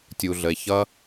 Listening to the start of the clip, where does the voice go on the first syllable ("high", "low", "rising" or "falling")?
low